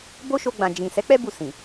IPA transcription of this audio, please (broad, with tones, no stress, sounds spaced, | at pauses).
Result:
b o˦ ʃ o˧ ɡ͡b ã˨ d͡ʒ ĩ˨ s ɛ˨˦ k͡p ɛ˦ b u˦˨ s ĩ˨